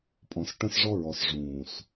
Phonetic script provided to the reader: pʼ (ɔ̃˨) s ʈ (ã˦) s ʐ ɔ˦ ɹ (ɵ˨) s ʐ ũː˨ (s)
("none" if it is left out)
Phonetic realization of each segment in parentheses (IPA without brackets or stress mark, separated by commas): ɔ̃˨, ə̃˦, ɔ˨, s